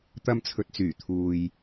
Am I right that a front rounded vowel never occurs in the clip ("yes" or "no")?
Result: no